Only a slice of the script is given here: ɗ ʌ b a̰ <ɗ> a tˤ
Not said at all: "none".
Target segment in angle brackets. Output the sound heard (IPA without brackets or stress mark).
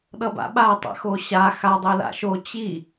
ɓ